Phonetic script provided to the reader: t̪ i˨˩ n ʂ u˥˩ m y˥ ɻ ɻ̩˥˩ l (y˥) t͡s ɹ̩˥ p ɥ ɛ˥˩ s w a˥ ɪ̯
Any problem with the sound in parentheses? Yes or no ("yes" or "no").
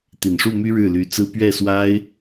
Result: yes